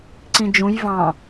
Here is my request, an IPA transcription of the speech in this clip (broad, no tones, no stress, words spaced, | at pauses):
ǀĩd͡ʒũj vɑ̃